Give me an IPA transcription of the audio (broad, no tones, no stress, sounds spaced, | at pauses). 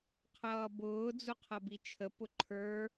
qʰ ʌː b ʊː d͡z u qʰ ʌ b i t͡ʃʰ ə p ʊ ǃʰ ə˞